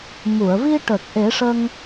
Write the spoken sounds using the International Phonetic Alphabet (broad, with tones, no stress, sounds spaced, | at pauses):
m u˨˩˨ ə̯ v i˧ ʈ ə˨˩ k̚ ʔ e˨˩˦ ʂ ə˧ ŋ